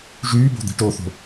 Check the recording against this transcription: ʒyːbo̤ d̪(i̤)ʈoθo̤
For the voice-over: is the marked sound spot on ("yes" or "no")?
yes